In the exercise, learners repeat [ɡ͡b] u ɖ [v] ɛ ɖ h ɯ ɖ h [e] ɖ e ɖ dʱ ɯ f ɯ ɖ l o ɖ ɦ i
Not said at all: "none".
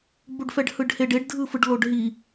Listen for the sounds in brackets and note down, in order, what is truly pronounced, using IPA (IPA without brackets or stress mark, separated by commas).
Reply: ɡ͡b, f, e